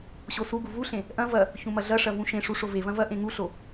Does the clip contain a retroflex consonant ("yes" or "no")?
yes